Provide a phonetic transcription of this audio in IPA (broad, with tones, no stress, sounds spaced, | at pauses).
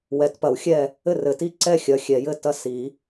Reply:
w ɛ˨˩˦ t p ɐ˨˩˦ w xʲ ɛ˥˨ | ɘ˥˨ r ɘ˨˩˦ t i˥˨ ǀ ɛ˥˨ xʲ ɐ˨˩˦ xʲ ɛ˨˩˦ j ɘ˥˨ t ɐ˥˨ s i˨˩˦